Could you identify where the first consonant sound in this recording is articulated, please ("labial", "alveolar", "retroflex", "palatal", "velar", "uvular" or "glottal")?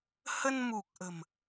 glottal